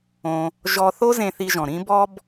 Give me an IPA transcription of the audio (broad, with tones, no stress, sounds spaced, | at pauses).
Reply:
õ˧ | ʒ ɔ˧ θ o˥ z ẽ˧ θ i˧ ʒ ɔ̃˩ ɾ ĩ˥ b ɔ˥ b